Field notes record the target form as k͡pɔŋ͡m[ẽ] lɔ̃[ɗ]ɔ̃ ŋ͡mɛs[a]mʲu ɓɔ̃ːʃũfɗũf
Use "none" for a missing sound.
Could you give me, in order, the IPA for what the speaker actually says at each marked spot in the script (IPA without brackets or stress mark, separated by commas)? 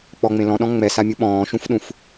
ẽ, ɗ, a